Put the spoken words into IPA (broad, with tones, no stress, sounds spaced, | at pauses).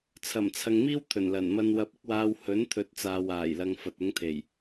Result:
t͡sʰ ɐ˨˩ m t͡sʰ ɐ˨ ŋ m iː˥ w t̪ʰ ɵ˨˩ n l ɐ˨˩ n m ɐ˧ n w ɐ˧ p̚ ɪ˥ k̚ w aː˧ w h ɵ˨˥ n t̪ʰ ɵ˨˥ t̚ t͡s aː˨ w aː˨˩ j l ɐ˨ ŋ f ɐ˨ t̚ ʊ˨˥ ŋ t̪ʰ e˨˩ j